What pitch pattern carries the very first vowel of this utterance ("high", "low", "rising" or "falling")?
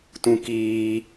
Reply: high